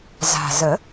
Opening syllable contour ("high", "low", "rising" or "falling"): low